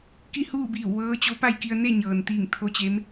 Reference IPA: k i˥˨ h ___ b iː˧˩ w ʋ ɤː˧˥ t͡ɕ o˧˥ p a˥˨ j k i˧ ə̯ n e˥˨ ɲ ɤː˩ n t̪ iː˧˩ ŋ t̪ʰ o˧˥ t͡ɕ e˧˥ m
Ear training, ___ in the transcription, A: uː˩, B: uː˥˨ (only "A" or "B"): B